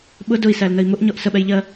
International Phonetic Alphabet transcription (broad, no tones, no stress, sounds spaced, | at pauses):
ɓ ʊ d ʊ i̯ s æ l n ə i̯ m ʊ ʔ ɲ ɔ ʔ s ə ɓ ɛ j ʎ ɜ